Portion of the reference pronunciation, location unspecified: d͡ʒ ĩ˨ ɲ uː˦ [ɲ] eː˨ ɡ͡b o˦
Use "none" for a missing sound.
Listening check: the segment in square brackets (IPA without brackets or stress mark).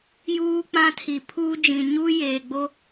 j